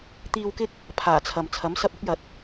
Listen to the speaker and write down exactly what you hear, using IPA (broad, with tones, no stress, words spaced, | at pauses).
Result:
t̪iː˧wkɪ˥k̚ | pʰaː˨˩t͡sʰɐ˨m t͡sʰɐ˨˥msɐ˧p̚ʊ˨˥k̚jɐ˨t̚